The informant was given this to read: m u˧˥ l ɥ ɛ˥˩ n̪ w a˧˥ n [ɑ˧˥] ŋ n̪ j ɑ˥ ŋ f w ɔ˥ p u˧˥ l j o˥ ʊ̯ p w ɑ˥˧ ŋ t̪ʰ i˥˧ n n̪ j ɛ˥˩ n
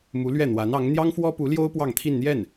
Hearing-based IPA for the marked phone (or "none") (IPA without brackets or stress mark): ɑ˧˥